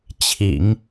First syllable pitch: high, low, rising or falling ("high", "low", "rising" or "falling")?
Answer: low